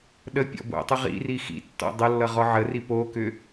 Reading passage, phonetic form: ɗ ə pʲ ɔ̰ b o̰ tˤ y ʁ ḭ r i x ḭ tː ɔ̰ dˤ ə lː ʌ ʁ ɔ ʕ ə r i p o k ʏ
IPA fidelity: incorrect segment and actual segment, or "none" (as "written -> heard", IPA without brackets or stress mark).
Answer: y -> ʏ